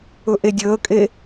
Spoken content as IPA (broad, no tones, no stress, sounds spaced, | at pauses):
ɵ ʔ e dʲ əː kʼ e